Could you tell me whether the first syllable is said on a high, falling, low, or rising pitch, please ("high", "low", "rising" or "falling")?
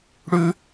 high